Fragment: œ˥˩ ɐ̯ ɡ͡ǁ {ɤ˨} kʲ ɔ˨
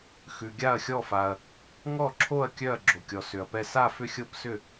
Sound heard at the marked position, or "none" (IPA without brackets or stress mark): o˨